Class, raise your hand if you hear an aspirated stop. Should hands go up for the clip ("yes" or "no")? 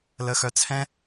yes